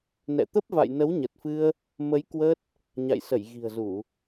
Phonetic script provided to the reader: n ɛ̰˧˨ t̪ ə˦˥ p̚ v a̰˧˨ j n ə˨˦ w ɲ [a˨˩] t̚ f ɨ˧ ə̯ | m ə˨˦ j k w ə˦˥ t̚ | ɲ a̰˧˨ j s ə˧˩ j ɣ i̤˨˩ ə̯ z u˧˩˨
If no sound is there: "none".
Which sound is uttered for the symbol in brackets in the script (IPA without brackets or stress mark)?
ə˨˩